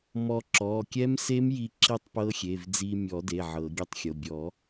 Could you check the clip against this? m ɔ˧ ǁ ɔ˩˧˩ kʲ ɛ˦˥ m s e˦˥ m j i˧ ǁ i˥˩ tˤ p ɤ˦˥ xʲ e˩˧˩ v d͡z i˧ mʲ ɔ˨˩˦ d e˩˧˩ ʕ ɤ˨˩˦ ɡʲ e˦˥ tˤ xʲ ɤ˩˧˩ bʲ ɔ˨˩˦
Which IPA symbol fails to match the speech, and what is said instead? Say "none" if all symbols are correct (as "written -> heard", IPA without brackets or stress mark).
none